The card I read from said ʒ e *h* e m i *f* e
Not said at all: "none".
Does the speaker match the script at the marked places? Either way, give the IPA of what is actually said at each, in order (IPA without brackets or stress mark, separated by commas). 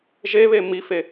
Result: β, f